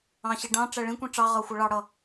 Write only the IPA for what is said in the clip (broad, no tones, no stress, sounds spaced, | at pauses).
ɑ̃ ɕ i ɖ ɑ̃ ʈ͡ʂ æ ɭ ĩ kʷ ĩ ʈ͡ʂ ɑ ʁ ʌ xʷ ʌ ɭ ɑ ɽ ʌ